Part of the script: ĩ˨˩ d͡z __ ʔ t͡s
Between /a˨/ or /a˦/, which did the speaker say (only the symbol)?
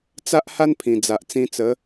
a˨